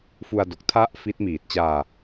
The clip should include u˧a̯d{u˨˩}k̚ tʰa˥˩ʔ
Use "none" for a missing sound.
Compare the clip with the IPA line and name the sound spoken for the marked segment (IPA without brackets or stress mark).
o˨˩